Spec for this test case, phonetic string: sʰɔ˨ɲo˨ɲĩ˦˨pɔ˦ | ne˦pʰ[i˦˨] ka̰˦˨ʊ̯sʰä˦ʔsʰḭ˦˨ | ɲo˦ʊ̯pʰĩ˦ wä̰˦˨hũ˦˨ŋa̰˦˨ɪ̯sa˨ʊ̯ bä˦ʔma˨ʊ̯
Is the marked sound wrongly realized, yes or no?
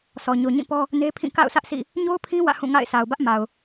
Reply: yes